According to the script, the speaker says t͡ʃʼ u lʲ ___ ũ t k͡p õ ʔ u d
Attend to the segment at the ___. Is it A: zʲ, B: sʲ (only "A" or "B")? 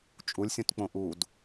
B